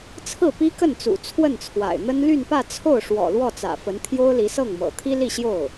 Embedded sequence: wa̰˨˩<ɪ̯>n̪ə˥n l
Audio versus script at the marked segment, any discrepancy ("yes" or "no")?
no